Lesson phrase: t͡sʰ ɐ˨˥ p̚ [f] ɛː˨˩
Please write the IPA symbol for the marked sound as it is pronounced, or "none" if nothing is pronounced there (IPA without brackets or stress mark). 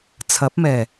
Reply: m